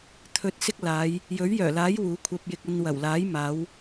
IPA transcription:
t̪ʰɵ˧t̚sɪ˥k̚laː˨˧j | jɵ˨˥ɥjœː˨˩laː˨˥j wuː˨˥kʷʰɐ˧p̚jɪ˧k̚ ɐ˧nwɐ˨˩wlaː˨˥j maː˨˧w

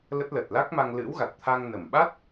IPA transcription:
lə˦˥t̚ lə˨˩t̚la˦˥k̚ma˧ŋ lɨ̰˧˥wɣa˨˩t̚t̪ʰa˧ŋ nə˧˩mɓa˦˥t̚

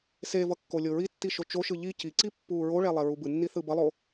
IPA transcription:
sevʌ kːolʲoɹitːi ʃot͡ʃoʃɯ ʎi ciǀi pːuːɹoɭɛ lˠeɹubɯnːi θɯbʌlˠo

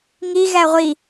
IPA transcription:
ŋi ɣæʁʷi

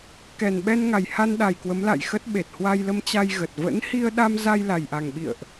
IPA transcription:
kɛ˨˩nɓɛ˧n ŋa˨˩jha˧nɗa˨˩j kwə˨˦mla̰˧˨jxə˦˥t̚ ɓe˨˩t̚hwa˧jlə˧m t͡ɕa˧jɣə˨˩t̚ və̰˧˥nhi˧ə̯ɗa˧m za˧j la˨˩jʔa˨˩ŋɓḭ˧˨ə̯ʔ

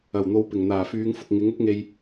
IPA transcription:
ɐ˨˩wn̪o˨˧wpɪ˨˩ŋ n̪aː˨˩fyː˨˧ŋfʊ˨k̚ ŋɪ˨˥ŋ ʊ˥k̚ŋe˧j

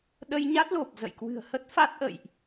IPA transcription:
ɗə˧jɲa˦˥t̚lo˨˩p̚ zə̰˧˨jkwɨ̤˨˩ə̯hə˦˥t̚ fa˦˥t̚ʔə̰˧˨jʔ

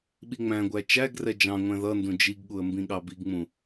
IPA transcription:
ɓiŋ͡mæ̃ɡʷæ t͡ʃæɡrɛ d͡ʒɑ̃ŋʷɛ̃ ðʌndũ d͡ʒiɡɠuə̯ mbĩɠɑbiɡŋ͡mũ

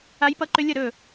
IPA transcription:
a˦˥jpʌ˦˥ǃʏ˦˥ lʲʌ˥˩ɾɵ˥˩

